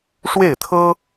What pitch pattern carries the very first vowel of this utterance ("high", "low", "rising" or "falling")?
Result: falling